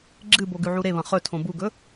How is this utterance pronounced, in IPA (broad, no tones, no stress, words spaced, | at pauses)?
ɡ͡ǁɨbo ɡʉʕuɾeβɐ̃ χɵtʰõ buɡɵ